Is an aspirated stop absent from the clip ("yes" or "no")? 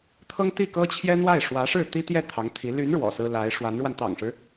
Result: no